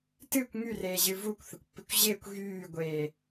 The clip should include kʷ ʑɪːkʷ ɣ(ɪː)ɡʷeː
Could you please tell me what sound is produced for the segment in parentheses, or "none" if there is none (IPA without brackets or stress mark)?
yː